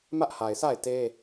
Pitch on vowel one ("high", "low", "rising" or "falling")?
high